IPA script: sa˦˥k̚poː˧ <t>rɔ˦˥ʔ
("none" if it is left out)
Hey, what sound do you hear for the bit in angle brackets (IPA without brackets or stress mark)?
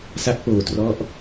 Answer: t